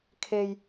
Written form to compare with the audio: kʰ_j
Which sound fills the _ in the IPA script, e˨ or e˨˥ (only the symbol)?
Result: e˨